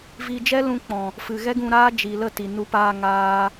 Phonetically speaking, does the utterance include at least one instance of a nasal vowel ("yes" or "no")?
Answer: yes